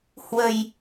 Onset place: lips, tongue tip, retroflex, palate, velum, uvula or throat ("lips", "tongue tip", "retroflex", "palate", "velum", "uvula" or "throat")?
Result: throat